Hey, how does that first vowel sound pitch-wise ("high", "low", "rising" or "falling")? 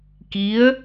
rising